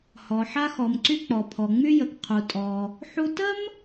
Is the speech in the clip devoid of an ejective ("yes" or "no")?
no